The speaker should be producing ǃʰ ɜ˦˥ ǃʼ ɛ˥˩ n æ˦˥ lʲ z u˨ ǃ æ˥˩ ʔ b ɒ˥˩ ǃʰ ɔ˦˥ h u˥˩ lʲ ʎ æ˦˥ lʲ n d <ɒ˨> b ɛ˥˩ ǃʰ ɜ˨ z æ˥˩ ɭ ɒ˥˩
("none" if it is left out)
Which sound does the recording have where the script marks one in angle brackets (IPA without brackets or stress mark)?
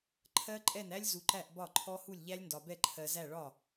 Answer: ɒ˨